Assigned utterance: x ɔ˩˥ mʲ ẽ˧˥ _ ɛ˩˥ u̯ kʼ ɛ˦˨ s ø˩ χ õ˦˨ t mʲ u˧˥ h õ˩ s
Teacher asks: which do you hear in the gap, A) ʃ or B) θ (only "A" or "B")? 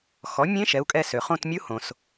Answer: A